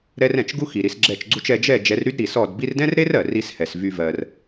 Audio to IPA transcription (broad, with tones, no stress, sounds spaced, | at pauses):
ɾ ɛ˧ r ɛ̃˨ t͡ʃ ɡ u˦ x i˨ ɾ i˧ s ɡ͡ǁ ɛ˦˨ t͡ʃ ɡ͡ǀ u˦ t͡ʃ ɛ˧ d͡ʒ ɛ˦˨ d͡ʒ ɛ˨˦ r ɾ y˦ d ɾ i˨ s ɔ˦˨ d b i˦ r d ɛ̃˦ r ɾ e˦ r ɜ˨ r i˦ s h ɛ˨ s v y˦ v ɜ˧ r